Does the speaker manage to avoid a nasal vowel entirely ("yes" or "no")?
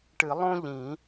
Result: no